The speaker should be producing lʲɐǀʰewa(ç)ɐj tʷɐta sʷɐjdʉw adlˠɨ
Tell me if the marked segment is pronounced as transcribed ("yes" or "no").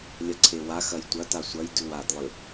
no